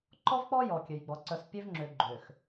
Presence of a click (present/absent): present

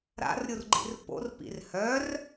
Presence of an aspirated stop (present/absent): absent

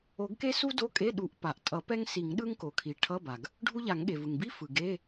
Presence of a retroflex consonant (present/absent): present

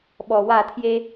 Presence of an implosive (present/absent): present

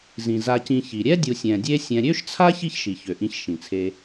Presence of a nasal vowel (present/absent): present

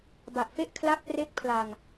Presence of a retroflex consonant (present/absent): absent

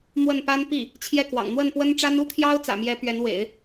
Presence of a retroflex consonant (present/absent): present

